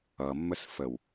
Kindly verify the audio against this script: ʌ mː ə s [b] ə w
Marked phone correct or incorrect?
incorrect